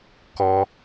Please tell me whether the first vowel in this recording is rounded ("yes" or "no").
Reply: yes